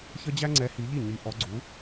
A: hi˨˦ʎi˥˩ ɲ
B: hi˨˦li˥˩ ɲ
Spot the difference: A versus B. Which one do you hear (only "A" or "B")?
A